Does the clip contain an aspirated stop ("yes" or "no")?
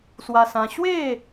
no